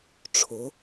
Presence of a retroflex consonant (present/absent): present